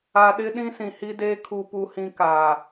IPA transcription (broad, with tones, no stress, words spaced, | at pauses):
a˨ɗɪ˦ɗĩ˦ sĩ˨hi˦deː˦ kʰu˦pu˦hĩ˦kaː˨